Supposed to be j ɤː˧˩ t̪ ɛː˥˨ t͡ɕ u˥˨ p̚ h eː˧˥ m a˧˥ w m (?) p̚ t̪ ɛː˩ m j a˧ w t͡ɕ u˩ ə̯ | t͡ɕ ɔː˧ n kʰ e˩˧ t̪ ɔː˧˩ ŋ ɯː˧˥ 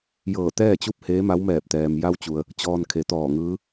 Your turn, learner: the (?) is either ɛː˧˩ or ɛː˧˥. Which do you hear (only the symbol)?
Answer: ɛː˧˩